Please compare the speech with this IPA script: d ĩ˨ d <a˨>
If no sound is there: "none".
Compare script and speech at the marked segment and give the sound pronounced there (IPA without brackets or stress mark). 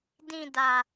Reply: a˨